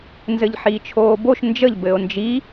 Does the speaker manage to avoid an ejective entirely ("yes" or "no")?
yes